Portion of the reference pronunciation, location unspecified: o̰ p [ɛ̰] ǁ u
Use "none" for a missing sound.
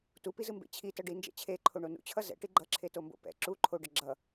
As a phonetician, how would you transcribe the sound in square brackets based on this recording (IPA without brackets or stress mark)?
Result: ɛ̰